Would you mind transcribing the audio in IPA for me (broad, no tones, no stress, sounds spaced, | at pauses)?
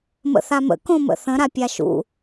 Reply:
m ə̰ θ a m ə̰ k õ m ə̰ θ ə̃ ɾ a pʲ a ʃ ṵ